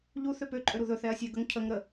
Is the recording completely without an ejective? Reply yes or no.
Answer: no